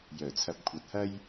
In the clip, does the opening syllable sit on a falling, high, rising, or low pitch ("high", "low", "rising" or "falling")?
low